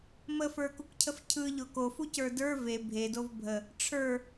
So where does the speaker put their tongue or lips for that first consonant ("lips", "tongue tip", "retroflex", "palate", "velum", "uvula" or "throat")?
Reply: lips